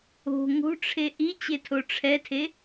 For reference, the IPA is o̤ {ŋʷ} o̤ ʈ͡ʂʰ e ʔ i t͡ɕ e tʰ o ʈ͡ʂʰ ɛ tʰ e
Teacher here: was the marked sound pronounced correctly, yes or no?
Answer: no